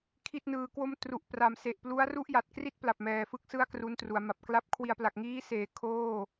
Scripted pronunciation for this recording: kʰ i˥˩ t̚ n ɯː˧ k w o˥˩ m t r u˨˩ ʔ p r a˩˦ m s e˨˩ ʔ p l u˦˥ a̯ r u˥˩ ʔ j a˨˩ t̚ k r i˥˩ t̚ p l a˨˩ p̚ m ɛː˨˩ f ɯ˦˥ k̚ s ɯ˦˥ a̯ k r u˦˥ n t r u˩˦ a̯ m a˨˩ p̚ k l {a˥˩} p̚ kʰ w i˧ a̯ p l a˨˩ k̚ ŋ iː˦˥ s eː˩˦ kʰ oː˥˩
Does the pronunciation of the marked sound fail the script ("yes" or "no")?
yes